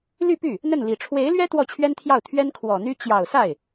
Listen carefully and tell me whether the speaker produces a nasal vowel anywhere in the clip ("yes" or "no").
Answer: no